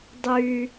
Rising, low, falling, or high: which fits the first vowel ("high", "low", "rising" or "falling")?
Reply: low